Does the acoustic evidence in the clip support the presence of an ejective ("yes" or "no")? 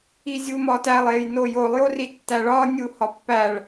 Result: no